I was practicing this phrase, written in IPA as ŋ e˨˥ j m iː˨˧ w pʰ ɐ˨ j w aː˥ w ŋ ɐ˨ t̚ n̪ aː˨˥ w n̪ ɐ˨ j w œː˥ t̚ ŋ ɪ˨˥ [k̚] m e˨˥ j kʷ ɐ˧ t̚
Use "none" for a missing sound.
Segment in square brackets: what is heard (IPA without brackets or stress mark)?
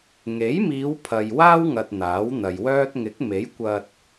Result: k̚